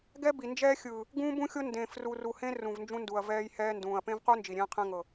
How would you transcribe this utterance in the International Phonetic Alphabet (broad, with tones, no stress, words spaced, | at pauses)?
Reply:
ɡɛ˦bi˨ nd͡ʒɛː˦xʲɯː˨ | ɡũː˦bũ˦xʲo˦ ndẽː˨fru˨ru˨hẽ˦ rũ˨vnd͡ʒũ˦ndu˨ɐ̯ vɛː˦j hɛː˦ndũː˨ɐ̯ pẽ˦vqu˦ nd͡ʒi˨ɾʲẽː˦qʰẽ˦ŋɤ˨